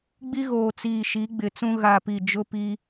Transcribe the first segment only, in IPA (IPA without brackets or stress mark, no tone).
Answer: ɡ͡b